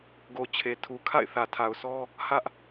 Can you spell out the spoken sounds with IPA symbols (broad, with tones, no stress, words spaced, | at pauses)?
ɡo˨ t͡ɕʰe˨ tʰu˨ kʰa̰˦˨ɪ̯θä˨tʰa˨ʊ̯sʰɔ˦ | hä˦ʔ